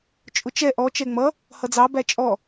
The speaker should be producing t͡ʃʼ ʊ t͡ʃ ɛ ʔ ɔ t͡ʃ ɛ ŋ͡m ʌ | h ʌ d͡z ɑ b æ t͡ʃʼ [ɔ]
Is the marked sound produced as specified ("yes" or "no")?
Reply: yes